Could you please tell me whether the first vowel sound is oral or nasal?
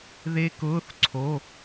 oral